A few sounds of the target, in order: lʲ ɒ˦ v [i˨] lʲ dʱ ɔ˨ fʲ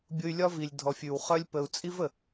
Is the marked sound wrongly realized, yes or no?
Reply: no